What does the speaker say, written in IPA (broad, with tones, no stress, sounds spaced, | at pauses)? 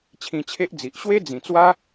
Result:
t͡ɕʰ ĩ˧ t͡ɕʰ e˦ ʔ d͡z i˨ ʔ ɕ w e˦ d͡z ĩ˨˩ t͡s w a˦